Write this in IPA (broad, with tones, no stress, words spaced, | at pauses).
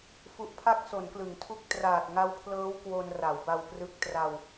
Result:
fu˨˩ʔpʰa˦˥k̚ so˩˦nklɯ˩˦ŋtʰu˦˥k̚ traː˨˩t̚ŋa˦˥wpʰlɤː˦˥w kwo˧nra˩˦wba˧wprɯ˦˥k̚ tra˧w